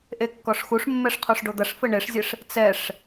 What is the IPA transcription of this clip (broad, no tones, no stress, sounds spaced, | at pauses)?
ʔ e kː ɔ ʂ x u ʂ mː ɛ ʂ qʰ o ʂ ɖ o d̪ ɐ ʂ f ɘ ɳ e ʂ zʲ ɘ ʂ | t͡s ɛ ʂ